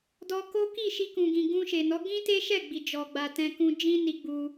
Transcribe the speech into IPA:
d ɔ˧ k o˦ k i˦˨ ʃ i˧ k ũ˨ ɡ ĩ˨ ɡ ũ˧ ʃ e˨ n ɔ˨˦ ɡ ĩ˦ t e˦ ʃ ɛ˦˨ ɡ͡b i˨ d͡ʒ ɔ˨ ɡ͡b a˨ t ɛ̃˧ k ũ˧ d͡ʒ ĩ˦ n i˧ ɡ͡b u˧

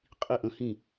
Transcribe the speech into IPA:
qʼ i˥˩ ʔ ə̃˨˥ h ĩ˥˩

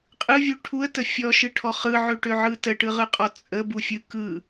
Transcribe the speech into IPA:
qʼ ɯ vʲ u ʈʰ u ə̯ t ə fʲ ɔ ʃ ɯ ʈʰ ɔ χ ɯ ʕ ø ʈ ø ʕ ɯ t ə ʈ ɯ ʁ ɯ qʼ ɔ t͡sʼ ə b u fʲ ɯ k ɯ

